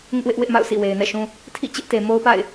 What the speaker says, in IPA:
ŋ ɪ˦ ʔ w ɪ˦ ʔ w ɪ˦ ʔ m a̰˦˨ ʊ̯ sʰ ḭ˦˨ w e˨ ɪ̯ n ɛ̰˦˨ ʃ ũ˦ | tʰ ḭ˦˨ t͡ɕ ɪ˦ ʔ t e˨ m o˦ ʊ̯ p a̰˦˨ ɪ̯

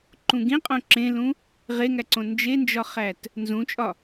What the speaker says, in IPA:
ǃ ũ ɡ ĩ qʼ õ ǁ ẽ l ũ | ʁ e ŋ æ ǀ õ n d͡ʒ e n d͡ʒ ɒ χ æ t | n z ũ t͡ʃʼ ɒ

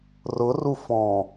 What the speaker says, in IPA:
r ʊ r u f ɔ̃

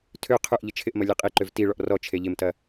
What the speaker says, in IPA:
tʰ ø qʰ ø ʔ ʎ ə t͡ʃʰ ɪ ʔ m ɐ lʲ ɛ qʼ i ǃ ø v t i ɭ ɔ ʔ r ɔ t͡ʃʰ e ʎ ɪ m t ɐ

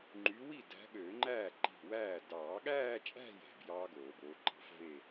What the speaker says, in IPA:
ŋ͡ǃ y˨˦ w i˥˩ d æ̤˨˦ ɠ øː˨˩˦ ŋ͡ǃ æ˥˩ ǃ i̤˧˩ w æː˥˩ d ɑː˨˩˦ ɠ æː˥˧ t͡ʃʼ æ̤˥˧ j æ̤˧˩ b j ɑː˦˥ ɡ oː˨˩˦ b oː˨˦ ǃ ɑ̤˦˥ f v e˥˧

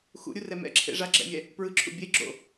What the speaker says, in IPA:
x ṵ ɾʲ u r ɛ m ɛ̰ ǁʰ ḛ ʐ a ɡ͡ǁ ɛ̰ mʲ ɛ | p ɹ ɯ ǁʰ ṵ bʲ e ɡ͡ǁ o̰

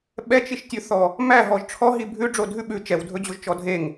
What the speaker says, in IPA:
ɓ ɛ t͡ʃ i ʃ tʲ ʉ θ ɔ | m æ ɦ ɔ ʒ ʈ͡ʂʰ ɔ ɦ i bʱ ʉ ɖ͡ʐ o dʱ ʉ ɓ ʉ t͡ʃ ɛ w dʱ ɵ d͡ʑ o ʒ t͡ʃ ɔ dʱ e ŋ

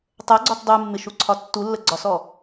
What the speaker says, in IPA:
tˤ ɛ ɡ͡ǀ ɔ t dˤ u mː ɪ ʃ u ǀʰ ɒ tː u lː ə ɡ͡ǀ ɒ s ɔ

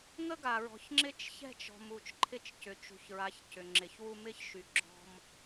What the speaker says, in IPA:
ŋ ə˦ ɡ a˨ ɹ ɔ̤˨ ç ŋ͡ǁ ɪ˦ t͡ʃ ç ɛ̤˦˨ t͡ʃ ɔ̤˨ m u˨ t͡ʃ ǃʰ ɪ˦ t͡ʃ c ʏ˨ t͡ʃ ṳ˨ ç ɹ a˨˦ ç c ʏ˨ ŋ͡ǁ ɪ˨ ç w u˦ m ɪ˦ ç ʃ y˨ ɡ͡ǁ ɔ̤˦ m

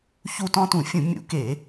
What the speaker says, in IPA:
ç u˦˨ t ɔ̃˦ t ũ˧˩˧ fʲ ũ˧˩˧ mʲ ṵ˧˩˧ k e˧˩˧

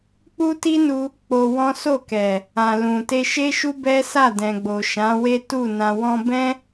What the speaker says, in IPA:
k͡p u˦ t i˦ n u˧ | k͡p o˧ w ɔ̃˦ s o˦˨ k ɛ˨ | ã˨ l ũ˨ t e˧ ʃ e˦ ʃ u˦ b ɛ˦ s a˦˨ d ɛ̃˨ ɡ͡b o˨ ʃ ã˨˦ w e˦ t u˦˨ n ã˨ w ɔ̃˧ b ɛ̃˦

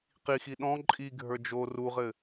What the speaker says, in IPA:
q i x i ɗ ɔ̃ ǃʼ i ɡʱ ə˞ d͡ʒ o r u ʁ ɘ

